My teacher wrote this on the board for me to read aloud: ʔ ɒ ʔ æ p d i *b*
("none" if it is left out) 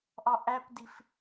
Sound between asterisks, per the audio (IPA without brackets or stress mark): f